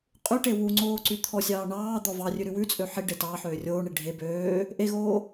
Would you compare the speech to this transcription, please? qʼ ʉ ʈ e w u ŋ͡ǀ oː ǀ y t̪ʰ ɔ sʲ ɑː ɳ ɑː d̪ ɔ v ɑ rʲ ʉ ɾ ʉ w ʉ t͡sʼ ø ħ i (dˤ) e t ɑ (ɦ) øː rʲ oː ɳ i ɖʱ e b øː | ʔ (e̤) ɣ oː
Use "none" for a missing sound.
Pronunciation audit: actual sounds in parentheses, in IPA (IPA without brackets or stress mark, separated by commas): ɖ, ħ, e